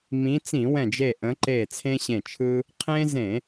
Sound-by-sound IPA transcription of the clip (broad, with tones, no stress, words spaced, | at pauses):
mĩ˨˦t͡sĩ˧˩˧wɛ̃˧˩d͡ʒe˧˩ ʔə̃˨˦ǃe˧˩ t͡sʰẽ˦ɕẽ˧˩t͡ʃʰɯ˦ | qʰẽ˦zẽ˧˩˧